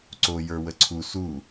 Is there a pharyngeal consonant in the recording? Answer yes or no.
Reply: no